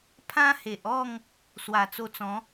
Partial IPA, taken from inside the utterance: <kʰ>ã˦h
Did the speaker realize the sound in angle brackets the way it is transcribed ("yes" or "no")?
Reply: no